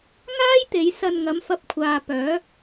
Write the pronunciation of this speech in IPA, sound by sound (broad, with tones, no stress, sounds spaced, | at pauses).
ŋ aː˥ j t̪ e˨˧ j s ɐ˧ n ŋ ɐ˨˥ m f ɐ˧ p̚ kʷʰ aː˨ p œː˨˥